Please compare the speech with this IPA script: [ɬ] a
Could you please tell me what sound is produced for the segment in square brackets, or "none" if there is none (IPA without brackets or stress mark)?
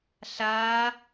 ɬ